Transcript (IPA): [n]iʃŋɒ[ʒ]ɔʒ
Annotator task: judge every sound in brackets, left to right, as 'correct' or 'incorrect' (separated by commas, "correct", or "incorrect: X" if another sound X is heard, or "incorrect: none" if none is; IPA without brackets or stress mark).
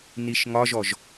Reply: correct, correct